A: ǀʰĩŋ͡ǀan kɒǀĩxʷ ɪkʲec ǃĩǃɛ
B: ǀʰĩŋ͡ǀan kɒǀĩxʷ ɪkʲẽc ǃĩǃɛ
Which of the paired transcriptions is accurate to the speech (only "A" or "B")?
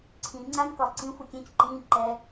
B